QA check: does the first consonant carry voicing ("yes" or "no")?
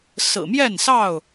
no